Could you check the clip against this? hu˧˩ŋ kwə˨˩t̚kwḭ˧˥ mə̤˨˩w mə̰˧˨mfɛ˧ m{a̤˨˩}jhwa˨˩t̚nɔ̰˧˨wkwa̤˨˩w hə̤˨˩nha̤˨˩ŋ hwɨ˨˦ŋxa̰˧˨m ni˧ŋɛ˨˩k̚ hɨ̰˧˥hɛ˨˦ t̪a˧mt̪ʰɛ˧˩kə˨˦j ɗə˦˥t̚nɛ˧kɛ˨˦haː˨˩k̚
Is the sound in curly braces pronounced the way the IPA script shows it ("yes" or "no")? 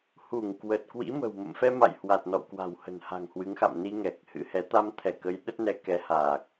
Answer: no